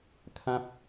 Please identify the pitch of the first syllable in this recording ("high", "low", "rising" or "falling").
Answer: high